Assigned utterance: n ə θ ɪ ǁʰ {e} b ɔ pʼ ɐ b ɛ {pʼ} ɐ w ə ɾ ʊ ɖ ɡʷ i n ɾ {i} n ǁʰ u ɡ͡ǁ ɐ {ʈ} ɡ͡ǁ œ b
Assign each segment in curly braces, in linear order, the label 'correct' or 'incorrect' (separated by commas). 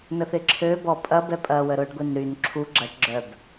incorrect, correct, incorrect, correct